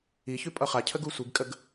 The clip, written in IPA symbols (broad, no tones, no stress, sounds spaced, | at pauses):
i ç ʉ pʼ ʌ χ a cʰ ə ɡ u sʷ i ɡ kʼ ə ɡ